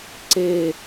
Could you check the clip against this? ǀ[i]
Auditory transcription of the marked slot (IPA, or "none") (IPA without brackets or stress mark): e